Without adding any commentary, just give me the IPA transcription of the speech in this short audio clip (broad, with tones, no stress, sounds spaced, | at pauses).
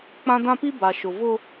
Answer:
k͡p ã˦ d ã˦ p i˦ b a˨ ʃ ʊ˨ v ʊ˦